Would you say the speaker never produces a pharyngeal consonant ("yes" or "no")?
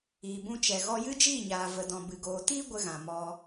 yes